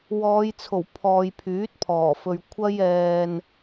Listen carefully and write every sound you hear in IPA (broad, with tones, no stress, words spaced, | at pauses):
wɔː˨˧jt͡sʰo˨˩wpʰɔː˨j pʰyː˨˥t̚pʰɔː˨˩fɵ˨ɥ kʷʰɐ˧jɛː˨n